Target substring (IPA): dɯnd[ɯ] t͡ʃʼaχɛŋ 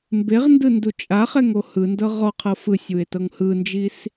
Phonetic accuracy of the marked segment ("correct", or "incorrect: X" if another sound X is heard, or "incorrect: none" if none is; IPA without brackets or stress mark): incorrect: u